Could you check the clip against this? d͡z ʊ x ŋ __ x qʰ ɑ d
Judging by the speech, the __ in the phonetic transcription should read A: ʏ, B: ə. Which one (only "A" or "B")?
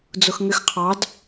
A